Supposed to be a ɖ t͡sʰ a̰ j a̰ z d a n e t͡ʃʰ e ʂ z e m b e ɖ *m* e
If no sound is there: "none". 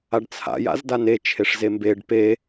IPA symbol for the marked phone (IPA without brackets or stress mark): p